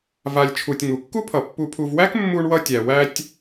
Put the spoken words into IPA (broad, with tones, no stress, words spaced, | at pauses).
va˨lʲt͡ʃʰu˨tʲ ŋu˩kːu˥pʰʌ˩ pːu˨pʰu˨vwæ˥k mːu˦ɳwʌ˦tʲæ˩ wæ˦tʲ